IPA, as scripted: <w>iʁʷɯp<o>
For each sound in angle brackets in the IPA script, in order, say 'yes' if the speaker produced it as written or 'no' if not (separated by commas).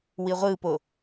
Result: yes, yes